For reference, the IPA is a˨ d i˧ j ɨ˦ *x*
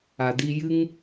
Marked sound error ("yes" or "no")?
yes